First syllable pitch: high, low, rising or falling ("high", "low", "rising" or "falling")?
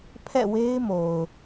falling